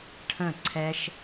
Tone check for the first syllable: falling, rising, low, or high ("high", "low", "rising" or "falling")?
falling